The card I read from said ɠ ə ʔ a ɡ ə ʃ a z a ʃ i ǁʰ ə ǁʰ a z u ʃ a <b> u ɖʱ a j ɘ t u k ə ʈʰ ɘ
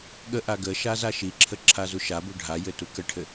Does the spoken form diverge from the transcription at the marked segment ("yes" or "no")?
no